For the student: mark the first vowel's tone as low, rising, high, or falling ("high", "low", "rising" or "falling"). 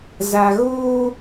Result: low